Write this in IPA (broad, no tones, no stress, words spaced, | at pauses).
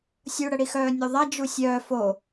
sʲuɽəɽixœː nʲuðˤa d͡ʒusʲœː fo